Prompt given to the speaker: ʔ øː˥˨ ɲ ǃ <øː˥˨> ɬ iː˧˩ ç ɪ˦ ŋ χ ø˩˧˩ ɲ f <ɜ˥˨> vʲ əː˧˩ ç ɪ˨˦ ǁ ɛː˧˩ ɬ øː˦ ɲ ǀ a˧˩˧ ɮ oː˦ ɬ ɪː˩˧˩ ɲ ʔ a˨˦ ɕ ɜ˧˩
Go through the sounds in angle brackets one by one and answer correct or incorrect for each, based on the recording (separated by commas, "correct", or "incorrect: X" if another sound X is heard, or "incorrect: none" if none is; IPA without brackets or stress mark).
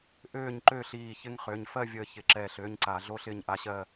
correct, correct